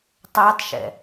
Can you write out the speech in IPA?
tˤ æ tˤ ʃ ɛ̰

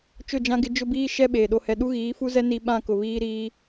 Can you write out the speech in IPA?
t͡ʃ ʊ˦˨ d͡ʒ ã˦ ɡ ɪ˦ d͡ʒ ʊ˦ b iː˦ ʃ ɛ˦ ɓ eː˨ ɗ o˦ h ɛ˦ ɗ u˦ ɣ iː˨˦ f u˦ z ɛ˦ n i˦ ɓ ã˦˨ k ʊ˨ β iː˦ ɾ iː˦

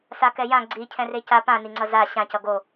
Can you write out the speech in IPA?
s a k ɛ j ã ɡ͡ǀ i cʰ ɛ̃ r e c a p ã n i ŋ͡ǀ ʌ z a ɕ ã c ʌ ɡ o

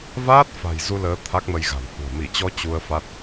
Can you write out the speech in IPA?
v aː˦˥ t̚ f a̤˨˩ j z u˧ l əː˨˦ t̪ʰ a˦˥ k̚ m ə˧ j ɣ a̤˨˩ n h ṳ˨˩ ə̯ m i˧˩ t͡ɕ ɔ˧ t͡ɕ u˧ ə̯ f a˦˥ t̚

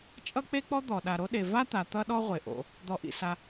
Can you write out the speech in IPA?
t͡ʃʼ ʌ˥ k͡p e˥ k͡p ɔ˥ d̪ ɔ˩ ɗ a˩ ɾ o˥ ɗ e˩ v a˥ t̪ a˩ t̪ ʌ˥ ɗ ɔ˥ ʁʷ e˩ ʔ o̰˩ | d̪ ɔ˩ ʔ ḭ˩ s a˩

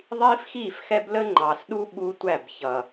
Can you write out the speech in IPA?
ðˤ iː˦ f x iː˦˨ f x ɛ˦ b l ə˦ ŋ͡ǃ ɑ˨ s ɗ u˦ ɓ u˦ tʷ æ˦˨ b ç ʌ˨

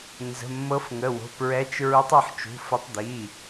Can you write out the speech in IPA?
n z ə̤˩˧˩ mː ɤ˨˦ f ŋ ə˩˧˩ w o̤˩˧˩ p ɹ ɛ˨˦ t͡ʃ ɹ u˨˦ tˤ ʊ˩˧˩ ħ t͡ʃ ṳ˩˧˩ f ə˨˦ tˤ d̪ i˩˧˩

